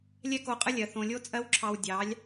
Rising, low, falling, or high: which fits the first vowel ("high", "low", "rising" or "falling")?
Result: high